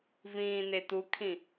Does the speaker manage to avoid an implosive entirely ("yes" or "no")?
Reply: yes